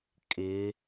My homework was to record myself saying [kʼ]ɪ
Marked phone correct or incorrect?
correct